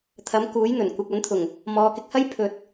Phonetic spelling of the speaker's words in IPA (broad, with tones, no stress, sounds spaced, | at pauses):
t̪ʰ ɐ˨˥ m k uː˨˥ j n̪ ɵ˨˩ n kʷ ɪ˨ k̚ ɐ˨˥ n t̪ʰ ʊ˨˩ ŋ | m ɔː˨˧ k ɪ˧ k̚ h ɐ˥ j pʰ ɵ˨ t̚